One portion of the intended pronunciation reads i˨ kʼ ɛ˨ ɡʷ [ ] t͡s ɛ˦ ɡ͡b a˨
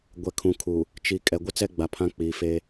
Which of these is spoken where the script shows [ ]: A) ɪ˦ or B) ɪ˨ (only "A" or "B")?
A